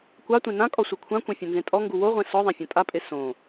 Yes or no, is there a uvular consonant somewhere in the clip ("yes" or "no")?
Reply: yes